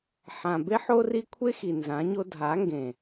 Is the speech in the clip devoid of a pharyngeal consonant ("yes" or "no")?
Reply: no